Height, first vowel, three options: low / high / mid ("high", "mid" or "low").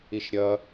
high